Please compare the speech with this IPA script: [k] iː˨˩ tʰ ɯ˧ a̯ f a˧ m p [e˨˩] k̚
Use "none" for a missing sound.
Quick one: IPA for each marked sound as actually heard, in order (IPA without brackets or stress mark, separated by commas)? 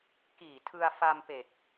k, e˨˩